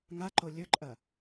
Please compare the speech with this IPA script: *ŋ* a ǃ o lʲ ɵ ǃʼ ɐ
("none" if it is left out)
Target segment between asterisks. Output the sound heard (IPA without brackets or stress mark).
ŋ